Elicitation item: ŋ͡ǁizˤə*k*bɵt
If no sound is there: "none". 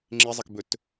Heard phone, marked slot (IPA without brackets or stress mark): k